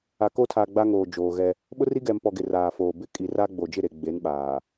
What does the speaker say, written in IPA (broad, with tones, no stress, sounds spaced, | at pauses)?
a˨ k o˦ tʰ a˨ ɡ͡b a˦ ŋ oː˨ d͡ʒ oː˨ ɣ ɛ˦ | ɓ ʊ˦ r i˦ ɡ ɛ˨ m p ɔ˨ ɡ ɪ˨ r aː˨ f oː˨ b ɪ˦˨ kʼ i˨ r a˦ ɡ͡b o˨ d͡ʒ ɪ˦˨ ɾ e˨ ɡ͡b e˨˦ n ɓ aː˨